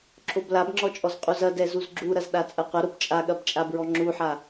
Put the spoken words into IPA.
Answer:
ǁʰoblabŋ͡ǁɔt͡ʃʼɔz qʼuzɐdɛ zuzɡ͡ǁuɾɐz ɗat͡sʼɐqʷɐɾob t͡ʃʼaɠɐbt͡ʃʼabɹɔ ŋ͡ǁuħa

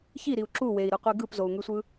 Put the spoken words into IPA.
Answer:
çiɾiu̯ ǁu wei̯ɾɯqʷe ɡɯpzou̯ŋysʷɯ

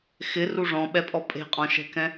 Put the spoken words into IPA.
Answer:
xɪ ruʐɔ̃ɓɛpʼɔ pʼe̤qʼɔ̃ʃɛ̤kɛ̃

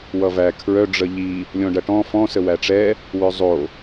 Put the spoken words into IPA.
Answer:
wʌvæ kʰɹœ ɖ͡ʐəʎi | lʲɔ̃ɖɐʈɔ̃ fɔ̃ səwæʈ͡ʂɛ | wœzˤo

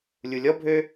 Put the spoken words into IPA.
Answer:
lʲulʲɔbʱø

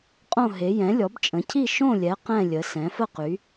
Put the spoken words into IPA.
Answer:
qʼõ˥˧ɦe˨˦ jɛ̃˨˦lʲɔ˨˦bt͡ʃʼə̃˨˦cʰi˥˧ ʃõ˥˧lʲɛ˨˦ qɛ̃˥˧lʲə˨˦ sɛ̃˨˦fə˥˧ qy˨˦

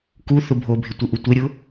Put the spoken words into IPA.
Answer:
ku θʊbʱobʱɪ tʷɪʔutʷeɾʲʊ

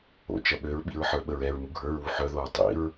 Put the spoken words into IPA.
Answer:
o̰ t͡ʃɐɓøɹɓḭɹ ħə˞ɓəɹɛɹ muɡʱə˞ɹwu ħœðoɹ tˤḭɹ

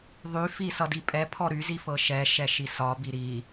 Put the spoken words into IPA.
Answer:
ðˤyfi sʌdipʼɛpʰɔ ɾyzi fɤʃɛʃɛ ʃisɒbi ɾi

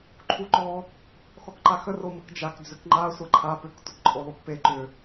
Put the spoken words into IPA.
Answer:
ǃʰuǃɔ | xɔkǃaxə roməkd͡ʒak d͡zʏkŋ͡ǃa sʷaǃʰa pʏk tʷəkǃʼolˠukpe ǃʏ

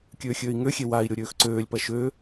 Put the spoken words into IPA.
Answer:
kʲøːxʲøːi̯ŋøxʲe wai̯ ɾʲoɾʲøːxǀøːlʲpɐ ʃø

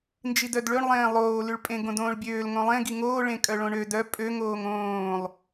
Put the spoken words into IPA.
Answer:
nd͡ʒidœdɭøɳlˠẽː lˠoːlyɭpʼẽ ɡõdõːɭbʲøːl ŋõlˠẽ ɡiŋoː ɭẽkʼœɭõɳø dœ pʼøŋoːŋ õːlˠ

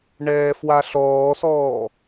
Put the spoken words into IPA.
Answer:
ɳɛːfwaɬɔːsɔː

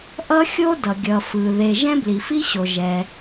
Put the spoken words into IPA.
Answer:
ʔʌ˥xʲo˥dʌ˩ ɡʲʌ˩ fɯ˩ ðe˩ ʒɛ̃˥bli˩fi˥ɕo˩ ʒɛ˩

